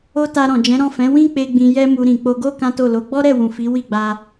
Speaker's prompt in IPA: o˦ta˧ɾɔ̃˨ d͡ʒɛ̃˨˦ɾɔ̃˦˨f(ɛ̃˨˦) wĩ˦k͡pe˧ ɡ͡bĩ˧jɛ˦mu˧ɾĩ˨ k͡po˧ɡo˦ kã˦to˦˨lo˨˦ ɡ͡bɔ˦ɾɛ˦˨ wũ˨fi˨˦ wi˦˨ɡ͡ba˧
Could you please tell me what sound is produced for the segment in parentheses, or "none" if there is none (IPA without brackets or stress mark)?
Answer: ɛ̃˨˦